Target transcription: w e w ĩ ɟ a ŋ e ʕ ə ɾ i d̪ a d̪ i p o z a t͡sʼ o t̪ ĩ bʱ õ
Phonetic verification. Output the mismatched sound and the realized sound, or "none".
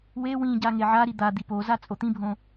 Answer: ə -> a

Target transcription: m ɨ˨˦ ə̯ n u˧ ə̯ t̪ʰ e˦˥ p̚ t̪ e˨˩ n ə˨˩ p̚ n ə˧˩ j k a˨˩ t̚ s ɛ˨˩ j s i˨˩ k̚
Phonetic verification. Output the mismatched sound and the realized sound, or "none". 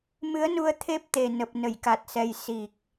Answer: none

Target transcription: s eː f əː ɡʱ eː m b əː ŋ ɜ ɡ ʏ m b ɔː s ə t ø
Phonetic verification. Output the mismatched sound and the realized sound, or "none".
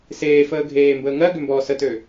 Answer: none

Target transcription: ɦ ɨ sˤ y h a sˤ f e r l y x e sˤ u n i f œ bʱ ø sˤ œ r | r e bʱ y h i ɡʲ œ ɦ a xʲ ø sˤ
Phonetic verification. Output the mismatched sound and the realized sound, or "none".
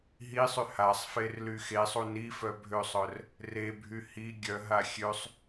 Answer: ɨ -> i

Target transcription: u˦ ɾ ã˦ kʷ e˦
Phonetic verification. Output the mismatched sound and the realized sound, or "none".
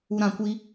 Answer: e˦ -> i˦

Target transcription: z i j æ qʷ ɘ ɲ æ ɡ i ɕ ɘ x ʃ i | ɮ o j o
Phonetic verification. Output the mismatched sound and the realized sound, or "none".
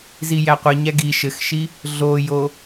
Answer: ɕ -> ʃ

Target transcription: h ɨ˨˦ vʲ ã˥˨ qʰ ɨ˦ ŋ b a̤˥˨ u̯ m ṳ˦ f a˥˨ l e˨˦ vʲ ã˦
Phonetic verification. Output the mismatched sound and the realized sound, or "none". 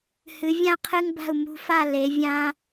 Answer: none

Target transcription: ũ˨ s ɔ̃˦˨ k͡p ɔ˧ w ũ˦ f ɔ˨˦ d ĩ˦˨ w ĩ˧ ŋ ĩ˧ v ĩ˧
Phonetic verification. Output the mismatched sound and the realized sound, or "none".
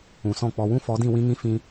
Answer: v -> f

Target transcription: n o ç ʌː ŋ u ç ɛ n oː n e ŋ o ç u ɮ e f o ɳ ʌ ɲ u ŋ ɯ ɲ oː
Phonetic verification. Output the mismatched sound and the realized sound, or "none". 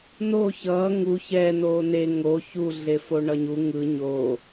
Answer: none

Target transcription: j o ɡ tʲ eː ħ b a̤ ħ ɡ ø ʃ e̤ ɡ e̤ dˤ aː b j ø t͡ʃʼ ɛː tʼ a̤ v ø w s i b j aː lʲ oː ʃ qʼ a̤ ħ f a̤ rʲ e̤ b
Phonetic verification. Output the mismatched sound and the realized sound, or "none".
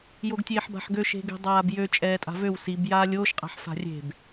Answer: none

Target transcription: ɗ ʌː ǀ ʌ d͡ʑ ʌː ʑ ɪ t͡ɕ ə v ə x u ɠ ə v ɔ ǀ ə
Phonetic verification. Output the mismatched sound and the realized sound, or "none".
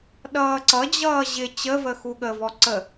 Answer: none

